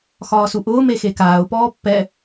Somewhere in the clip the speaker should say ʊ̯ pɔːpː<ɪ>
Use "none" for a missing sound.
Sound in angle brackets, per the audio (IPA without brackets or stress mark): ɛ